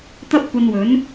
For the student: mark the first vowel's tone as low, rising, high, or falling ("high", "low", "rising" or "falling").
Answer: high